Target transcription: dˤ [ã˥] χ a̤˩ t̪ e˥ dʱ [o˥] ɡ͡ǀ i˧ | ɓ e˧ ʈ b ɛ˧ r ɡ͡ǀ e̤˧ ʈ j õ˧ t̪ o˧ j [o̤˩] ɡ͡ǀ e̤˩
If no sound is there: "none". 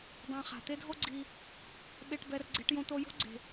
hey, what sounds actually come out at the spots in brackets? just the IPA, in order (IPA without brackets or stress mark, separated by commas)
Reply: ã˧, o˥, o̤˥